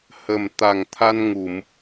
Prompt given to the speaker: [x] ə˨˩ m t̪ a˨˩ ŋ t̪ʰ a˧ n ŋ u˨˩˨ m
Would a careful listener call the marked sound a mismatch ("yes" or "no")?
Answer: yes